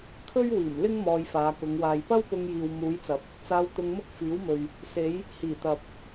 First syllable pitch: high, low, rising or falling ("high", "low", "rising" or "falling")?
high